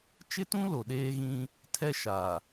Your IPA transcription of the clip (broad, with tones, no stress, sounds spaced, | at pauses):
t͡ʃ ɪ˦ t ũ˦ l o˨ ɗ eː˦ ɣ ĩ˦ | tʰ ɛ˦ ʃ a˨